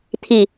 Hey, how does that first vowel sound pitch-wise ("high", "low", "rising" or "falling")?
low